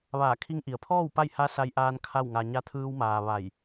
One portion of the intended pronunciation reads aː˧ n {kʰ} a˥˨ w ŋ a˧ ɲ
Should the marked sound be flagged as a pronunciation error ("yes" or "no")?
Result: no